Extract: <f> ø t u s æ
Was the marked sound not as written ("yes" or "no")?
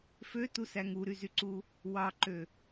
no